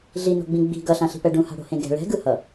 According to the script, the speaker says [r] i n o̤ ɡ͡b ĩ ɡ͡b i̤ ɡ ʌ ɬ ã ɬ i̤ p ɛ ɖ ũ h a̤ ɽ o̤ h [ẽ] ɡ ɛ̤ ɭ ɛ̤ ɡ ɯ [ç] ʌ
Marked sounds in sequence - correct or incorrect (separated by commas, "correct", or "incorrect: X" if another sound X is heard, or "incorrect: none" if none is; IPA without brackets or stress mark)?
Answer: incorrect: ɮ, correct, incorrect: h